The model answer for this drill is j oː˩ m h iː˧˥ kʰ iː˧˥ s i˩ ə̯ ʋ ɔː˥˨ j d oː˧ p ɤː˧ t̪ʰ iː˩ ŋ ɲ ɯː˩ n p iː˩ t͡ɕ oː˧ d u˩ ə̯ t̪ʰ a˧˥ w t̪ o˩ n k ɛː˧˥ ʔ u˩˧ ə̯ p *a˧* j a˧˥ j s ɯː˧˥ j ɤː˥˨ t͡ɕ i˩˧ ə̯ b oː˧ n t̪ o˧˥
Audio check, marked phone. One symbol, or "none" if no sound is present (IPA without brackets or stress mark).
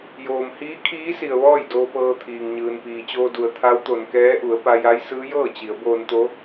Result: a˧